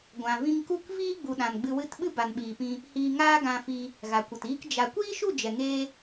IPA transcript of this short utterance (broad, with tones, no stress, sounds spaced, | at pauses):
ɡʷ ã˨ v ĩ˧ ŋ k u˦˨ k v iː˧ ɡ͡b u˨ ɗ ã˨ n ɡ͡b ɨ˧ w ɨ˦˨ t ɓ ɨ˦ b a˨ n ɓ iː˨ p ĩ˧ | h iː˧ ŋ aː˦ ɡ ã˧ f i˧ | ɣ a˨ kʷ ə˨ t iː˦ k d͡ʒ a˧ kʷ iː˦ ʃ u˦˨ d͡ʒ ɛ˨ ŋ eː˧